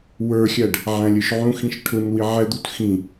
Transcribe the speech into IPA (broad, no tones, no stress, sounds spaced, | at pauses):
w ə˞ xʲ æ ɖ | ʕ æ̃ lʲ ə˞ ʃ ʕ ũ x ĩ ʃ ʈʰ ʊ n w i ʕ ɛ d̪ u t x ĩ